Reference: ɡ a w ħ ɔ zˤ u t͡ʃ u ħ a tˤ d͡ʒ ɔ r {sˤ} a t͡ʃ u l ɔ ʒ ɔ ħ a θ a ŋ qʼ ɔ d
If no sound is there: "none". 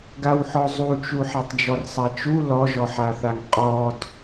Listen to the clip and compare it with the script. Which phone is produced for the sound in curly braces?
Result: sˤ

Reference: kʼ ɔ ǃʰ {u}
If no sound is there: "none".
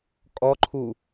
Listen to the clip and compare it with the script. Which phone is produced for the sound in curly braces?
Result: u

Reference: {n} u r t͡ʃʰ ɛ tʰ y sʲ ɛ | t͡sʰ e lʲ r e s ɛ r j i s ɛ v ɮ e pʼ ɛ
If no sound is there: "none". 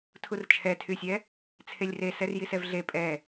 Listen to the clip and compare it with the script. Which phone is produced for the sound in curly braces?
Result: tʰ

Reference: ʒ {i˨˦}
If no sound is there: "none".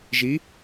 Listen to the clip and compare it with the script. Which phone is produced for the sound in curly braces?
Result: i˨˦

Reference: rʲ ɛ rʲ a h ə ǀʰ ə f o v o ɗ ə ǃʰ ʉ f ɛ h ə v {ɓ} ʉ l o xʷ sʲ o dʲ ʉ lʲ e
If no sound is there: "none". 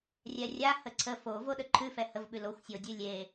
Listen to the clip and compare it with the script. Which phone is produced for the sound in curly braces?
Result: ɓ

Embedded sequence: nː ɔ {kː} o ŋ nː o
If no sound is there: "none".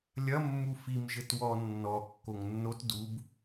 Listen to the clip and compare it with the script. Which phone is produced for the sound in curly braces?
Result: kː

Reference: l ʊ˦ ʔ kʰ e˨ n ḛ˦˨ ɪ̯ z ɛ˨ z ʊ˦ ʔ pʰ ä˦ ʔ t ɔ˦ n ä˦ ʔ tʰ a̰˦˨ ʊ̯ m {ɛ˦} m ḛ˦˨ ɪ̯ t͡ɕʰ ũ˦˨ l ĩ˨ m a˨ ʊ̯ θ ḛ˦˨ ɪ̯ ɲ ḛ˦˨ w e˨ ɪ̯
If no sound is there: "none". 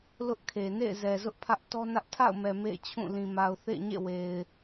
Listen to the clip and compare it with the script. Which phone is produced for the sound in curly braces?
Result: ɛ˨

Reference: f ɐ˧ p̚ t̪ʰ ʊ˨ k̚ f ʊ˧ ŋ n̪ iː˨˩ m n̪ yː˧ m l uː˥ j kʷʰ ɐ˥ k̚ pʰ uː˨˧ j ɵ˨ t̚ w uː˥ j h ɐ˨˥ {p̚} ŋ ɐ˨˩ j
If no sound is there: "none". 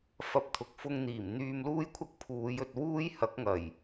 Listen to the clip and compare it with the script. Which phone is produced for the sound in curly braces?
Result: k̚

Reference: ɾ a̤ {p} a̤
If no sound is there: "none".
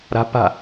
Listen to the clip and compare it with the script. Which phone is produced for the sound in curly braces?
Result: p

